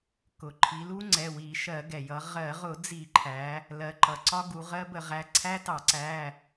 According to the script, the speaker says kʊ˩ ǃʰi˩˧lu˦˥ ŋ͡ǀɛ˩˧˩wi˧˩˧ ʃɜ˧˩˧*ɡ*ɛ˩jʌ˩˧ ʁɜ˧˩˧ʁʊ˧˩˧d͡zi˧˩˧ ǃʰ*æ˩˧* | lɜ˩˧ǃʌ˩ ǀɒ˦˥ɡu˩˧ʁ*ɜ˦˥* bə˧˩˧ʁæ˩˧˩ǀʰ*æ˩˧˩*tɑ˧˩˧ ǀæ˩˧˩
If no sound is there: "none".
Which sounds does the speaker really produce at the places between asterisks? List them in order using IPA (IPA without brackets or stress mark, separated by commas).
ɡ, æ˩˧, ɜ˦˥, æ˦˥